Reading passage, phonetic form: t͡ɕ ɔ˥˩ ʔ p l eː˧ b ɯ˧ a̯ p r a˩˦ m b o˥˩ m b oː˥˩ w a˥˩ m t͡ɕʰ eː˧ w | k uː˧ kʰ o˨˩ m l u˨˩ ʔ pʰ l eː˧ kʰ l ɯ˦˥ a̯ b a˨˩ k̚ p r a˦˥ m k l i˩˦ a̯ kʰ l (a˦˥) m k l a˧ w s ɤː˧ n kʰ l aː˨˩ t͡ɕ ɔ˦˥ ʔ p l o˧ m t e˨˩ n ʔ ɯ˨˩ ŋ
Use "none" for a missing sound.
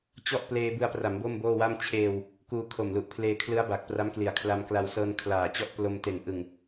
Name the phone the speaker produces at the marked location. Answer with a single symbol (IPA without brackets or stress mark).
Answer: a˧